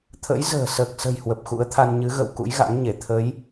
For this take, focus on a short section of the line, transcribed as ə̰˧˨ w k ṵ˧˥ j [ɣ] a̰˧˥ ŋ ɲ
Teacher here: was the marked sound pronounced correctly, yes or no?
yes